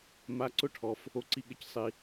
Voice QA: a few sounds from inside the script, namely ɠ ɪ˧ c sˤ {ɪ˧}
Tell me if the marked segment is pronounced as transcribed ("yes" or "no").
no